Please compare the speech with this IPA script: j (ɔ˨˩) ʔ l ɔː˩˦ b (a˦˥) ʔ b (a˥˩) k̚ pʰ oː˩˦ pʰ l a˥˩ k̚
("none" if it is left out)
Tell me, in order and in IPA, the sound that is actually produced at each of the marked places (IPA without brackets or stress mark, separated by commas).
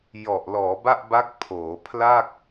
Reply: ɔ˨˩, a˥˩, a˦˥